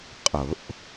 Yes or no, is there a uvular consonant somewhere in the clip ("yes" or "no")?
yes